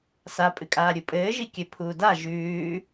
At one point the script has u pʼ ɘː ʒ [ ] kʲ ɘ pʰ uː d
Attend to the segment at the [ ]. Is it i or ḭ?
i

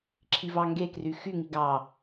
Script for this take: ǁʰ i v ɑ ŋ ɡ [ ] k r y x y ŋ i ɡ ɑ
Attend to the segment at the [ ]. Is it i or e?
e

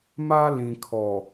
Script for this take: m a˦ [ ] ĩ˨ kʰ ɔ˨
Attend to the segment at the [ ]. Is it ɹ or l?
l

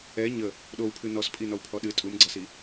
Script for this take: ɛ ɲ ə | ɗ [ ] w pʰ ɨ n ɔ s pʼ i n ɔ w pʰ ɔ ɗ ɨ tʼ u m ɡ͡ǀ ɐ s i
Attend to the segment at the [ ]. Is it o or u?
o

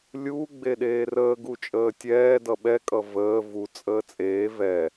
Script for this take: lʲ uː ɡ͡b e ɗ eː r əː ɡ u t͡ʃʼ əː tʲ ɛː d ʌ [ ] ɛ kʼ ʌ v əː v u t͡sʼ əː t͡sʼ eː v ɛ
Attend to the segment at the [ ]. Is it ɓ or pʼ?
ɓ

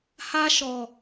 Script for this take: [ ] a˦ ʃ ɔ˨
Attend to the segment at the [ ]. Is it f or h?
h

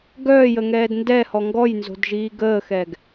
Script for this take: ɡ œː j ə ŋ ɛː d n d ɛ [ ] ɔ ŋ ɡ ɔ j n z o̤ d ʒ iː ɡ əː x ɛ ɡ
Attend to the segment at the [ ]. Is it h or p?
h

